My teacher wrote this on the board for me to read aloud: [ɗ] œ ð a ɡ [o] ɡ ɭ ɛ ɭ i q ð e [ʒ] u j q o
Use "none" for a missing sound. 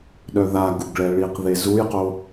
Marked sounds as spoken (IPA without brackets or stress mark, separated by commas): ɗ, u, z